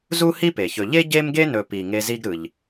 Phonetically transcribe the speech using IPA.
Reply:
zu˥hi˥pe˩çɵ˨ ʎe˥ ɟe˥mɡe˥nɵ˨pi˩ ŋe˦zi˥ɡɾɯ˨ʎ

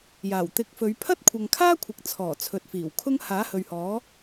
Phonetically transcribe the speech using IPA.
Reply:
jaː˨˩wt̪ɪ˨˥k̚fɵ˨˧ɥ pʰɐ˥t̚kʷʰɐ˨ŋkʰaː˥kʷʰɪ˨k̚ t͡sʰɔː˨˩t͡sʰɵ˨t̚fiː˨˩w kʰʊ˥ŋ haː˨˥ hɵ˨ɥhɔː˨˥

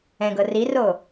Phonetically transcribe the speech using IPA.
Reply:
ɛ̃ɡɤ riro

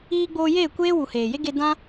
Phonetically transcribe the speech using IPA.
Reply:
iː˧ɡ͡boː˧jeː˦˨kʷeː˦ wu˨heː˨je˦ɡe˧ dã˦

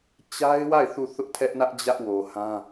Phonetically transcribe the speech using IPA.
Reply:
t͡ɕa˦ɪ̯wa˦˨ɪ̯ θu˦˨θʊ˦ʔtʰɛ˦ʔnä˦ʔ d͡ʑä˦ʔwo˨hã˦

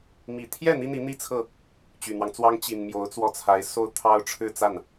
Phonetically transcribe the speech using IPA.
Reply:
mi˨˩t̪ʰjɛ˥˩ n̪i˥n̪i˧˥n̪i˥˧t͡sʰɤ˥˩ | t͡ɕy˨˩n̪wɑ˦ŋt͡swɑ˥ŋ t͡ɕi˨˩nmjo˧˥ʊ̯t͡swɔ˥˩t͡sʰa˧˥ɪ̯ so˥ʊ̯t̪ʰɑ˥ʊ̯ ʈ͡ʂʰɻ̩˥˧t͡sa˥˩n

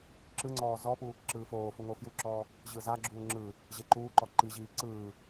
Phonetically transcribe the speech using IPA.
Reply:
ǁɯŋ͡ǀɔː zɔpu | ǁɯːfoːfu ŋofjuǁɔː | ʑɯzaɡ͡ǁuː ŋ͡ǁɯ | ʑeǃuːǃɔ ǃiʑiː ǀɯː

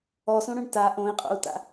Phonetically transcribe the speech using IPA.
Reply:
ɔsõɽõɳ ta ʔõi̯qʼo̰u̯ta̰

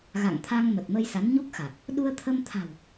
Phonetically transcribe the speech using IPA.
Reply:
ɣa̰˧˨ŋt̪ʰa˧ŋmə˨˩t̚mə˧j sa˨˦nɲu˦˥k̚xa˨˩k̚ | ɗu˧ə̯t̪ʰə˧mt̪ʰa̤˨˩w

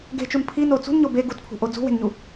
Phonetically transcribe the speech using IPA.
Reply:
ɡe̤t͡ʃun pʰino t͡sṳnɲo be ɡutpʰṳʔo d͡zṳwe̤nɲu

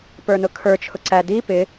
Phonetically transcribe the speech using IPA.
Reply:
pə˞nʊkʰə˞ t͡ʃʰʊǀæ di pɪ

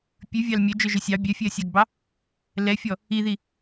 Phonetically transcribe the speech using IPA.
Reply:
pʲʉvʲɑl mʲœd͡ʒœʒœ sʲɑ bʲœfʲeɐ̯sʲɑɡbɑ | lɛfʲɔ | iði

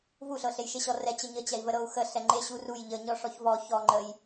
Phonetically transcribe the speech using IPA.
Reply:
vuɬɤɬejʃe ɕɔrɛ t͡ɕəɲət͡ɕɛi̯ vəɾɤu̯xə ɬɛŋ͡ǃe ɕuruj ʎə ɲɔʂɔçvɔ çɔ ŋ͡ǃəj

